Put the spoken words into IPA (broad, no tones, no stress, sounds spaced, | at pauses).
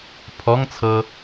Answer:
pʰ ɔ ŋ t͡sʰ ɤ